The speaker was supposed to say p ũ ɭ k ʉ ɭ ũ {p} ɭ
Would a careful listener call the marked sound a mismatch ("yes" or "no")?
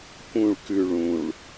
yes